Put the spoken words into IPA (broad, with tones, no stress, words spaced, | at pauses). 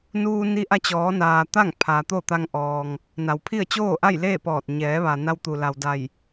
nuː˧ ni˧˥ ʔa˧t͡ɕɔː˩˧naː˩ t̪a˥˨ŋ pʰaː˩t̪o˥˨t̪a˧ŋ ʔɔː˩ŋ | na˩w pʰi˥˨ə̯ t͡ɕoː˥˨ʔa˥˨jleː˥˨ pɔː˧˩t̚ ɲɛː˩˧ʋa˩ na˧wt̪u˩la˩wda˧˩j